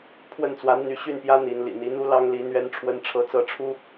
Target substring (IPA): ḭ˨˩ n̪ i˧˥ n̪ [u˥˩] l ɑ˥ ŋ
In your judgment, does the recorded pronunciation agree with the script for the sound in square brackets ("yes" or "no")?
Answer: no